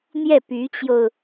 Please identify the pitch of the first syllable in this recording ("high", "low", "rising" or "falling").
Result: falling